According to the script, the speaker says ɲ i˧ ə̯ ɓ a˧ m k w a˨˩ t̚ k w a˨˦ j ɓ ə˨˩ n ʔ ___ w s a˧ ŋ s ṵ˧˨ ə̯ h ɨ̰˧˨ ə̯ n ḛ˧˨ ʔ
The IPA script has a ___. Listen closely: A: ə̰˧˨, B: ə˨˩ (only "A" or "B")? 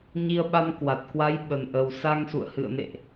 B